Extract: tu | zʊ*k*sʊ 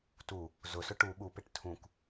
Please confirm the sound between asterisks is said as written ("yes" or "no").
no